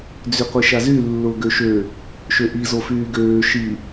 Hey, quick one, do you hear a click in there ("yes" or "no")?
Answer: no